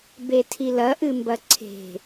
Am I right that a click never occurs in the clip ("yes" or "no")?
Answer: no